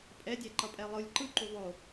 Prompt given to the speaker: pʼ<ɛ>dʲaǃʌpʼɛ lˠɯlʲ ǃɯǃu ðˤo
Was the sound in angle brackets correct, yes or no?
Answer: yes